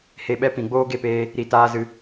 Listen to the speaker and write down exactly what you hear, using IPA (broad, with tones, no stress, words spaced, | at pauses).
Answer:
he˧ɓɛ˦pĩ˨ ɡ͡boː˦ɡe˦˨peː˧ | ɾi˧taː˦zɨ˧